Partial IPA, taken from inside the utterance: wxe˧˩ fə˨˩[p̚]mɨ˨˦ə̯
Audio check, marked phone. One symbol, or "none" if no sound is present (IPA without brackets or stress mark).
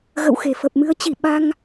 p̚